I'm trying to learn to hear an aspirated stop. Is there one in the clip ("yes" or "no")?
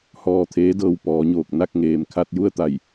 yes